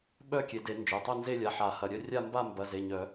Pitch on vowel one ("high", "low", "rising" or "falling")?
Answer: falling